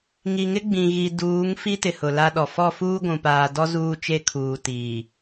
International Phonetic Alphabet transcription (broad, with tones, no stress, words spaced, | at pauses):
ŋi˨ŋɪ˦ɡ͡bĩ˨ ɣi˨duː˨˦ŋ fi˦tɪ˨ hʊ˨la˦ɗɔ˨ fɔ˦˨fuː˦ ɡʷũ˨paː˨dɔ˦ zuː˦t͡ʃe˦kʰuː˨ tiː˨